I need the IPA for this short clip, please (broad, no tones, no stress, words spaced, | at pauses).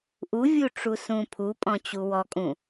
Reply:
ʔuvʲu ʈ͡ʂusũpʰupʼɔ̃ t͡ɕuwɔkʼũ